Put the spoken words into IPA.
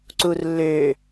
ǀurlːø

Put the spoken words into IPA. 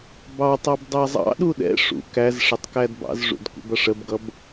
bɑtˤɑb dˤæzˤɑ̰ɗu ɗɛ̰ ʂṵ kæz ʂətˤkædbɑ̰zʐṵd kʷɛ̰bʌʂəbɡʌb

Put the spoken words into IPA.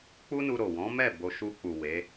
k͡pu˦nu˧ ɾo˨ wɔ̃˨˦mɛ˦˨ bo˧ ʃu˧k͡pu˨ we˨˦

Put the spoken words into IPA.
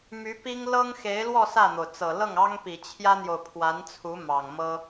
my˧˥pi˥ŋ lɤ˥ŋxe˧˥ɪ̯lwɔ˥˧ sä˥˩n̪o˩ʊ̯t͡sɤ˨˩ lɤ˥˩ŋɑ˥ŋpi˨˩ t͡ɕʰjä˥n̪jo˨ʊ̯pʰwa˧˥nt͡sʰu˧˥ mɑ˨˩ŋmɤ˥

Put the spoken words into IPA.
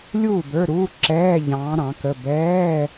lʲuː˥˨bə˞˧˥˧ɾuː˧˥˧ ǁɛː˧˥˧ ʎɑ̃ː˧˥ɾɑ̃˩˥kə˧˥˧ bɛː˧˥˧

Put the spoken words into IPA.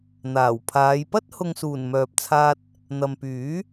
n̪aː˨˩wpʰaː˨˧j pɐ˥t̚hʊ˨ŋsuː˨˩n mœː˨p̚t͡sʰaː˧t̚ | n̪ɐ˨mpyː˨˥

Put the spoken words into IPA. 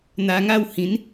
n̪a˧ŋa˥˧whĩ˨˦n

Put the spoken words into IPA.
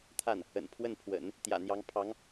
t̪ʰa˥˩n | ə̰˨˩npʰwə˥˩npʰwə̰˨˩˦n | t̪jä̰˨˩n̪jɑ˧˥ŋ pʰɑ˧˥ŋ

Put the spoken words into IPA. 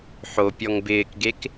ħopʲɔŋ bɪːkɡek

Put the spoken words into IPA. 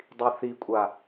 dˤiθikʷʼa

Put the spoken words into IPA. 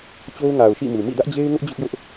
t͡ɕo˦ʊ̯ŋa˨ʊ̯ʃḭ˦˨mu˨ mḭ˦˨dä˦ʔd͡ʑe˦ɪ̯ŋʊ˦ʔ d͡ʑʊ˦ʔjʊ˦ʔ

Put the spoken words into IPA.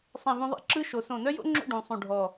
sˤẽ˧˩vũ˧ðˤḛ˥˧ ǁɯ˥ʃo˩˧ sõ˧˩nœ˥jo̰˥ŋ͡ǁo̰˥˧ ɖũ˩˧ sˤũ˧˩ɖʱɔ˧˩

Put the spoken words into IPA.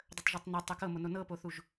dˤətˤʒɵtˤnɛ tˤokɤmono nɤpoθuʒ

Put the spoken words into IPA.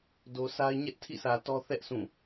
do˨sʰa˦ɪ̯ ɲɛ˦ʔtʰḭ˦˨sä˨ tɔ˦θɛ˦ʔ sʰũ˦˨

